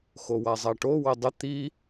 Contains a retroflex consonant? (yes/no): yes